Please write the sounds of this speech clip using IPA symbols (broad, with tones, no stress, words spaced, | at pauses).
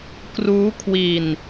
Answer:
kruː˦˥kʰwi˧n